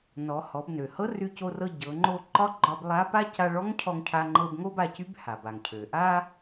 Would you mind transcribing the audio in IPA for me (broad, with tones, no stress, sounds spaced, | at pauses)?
n ɔ˩˧ h ɔ˩˧ b n ø˩ h ɤ˧˥ r y˧ c o˧ r ɤ˧ ɟ ɤ˩˧ ŋ͡ǃ o˧ ǃ ɒ˧˥ ɡ͡ǃ ɒ˧ b lˠ a˧˥ p a˥ c a˧ ɭ ɔ˧˥ ŋ cʰ ɔ˧ ŋ cʰ a˧ ŋ͡ǃ ɤ˧ b ŋ o˥ b a˧ c y˧˥ b h a˩ b a˩ ŋ cʰ ø˩ ʔ a˥